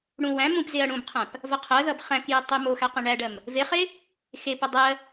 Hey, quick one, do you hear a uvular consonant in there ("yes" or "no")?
yes